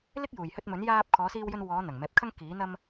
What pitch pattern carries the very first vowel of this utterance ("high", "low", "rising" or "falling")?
high